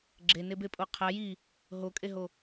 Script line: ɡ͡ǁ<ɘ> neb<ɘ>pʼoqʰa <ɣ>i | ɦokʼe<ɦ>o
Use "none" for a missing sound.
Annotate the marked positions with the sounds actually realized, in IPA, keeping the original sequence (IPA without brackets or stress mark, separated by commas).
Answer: e, e, j, ɦ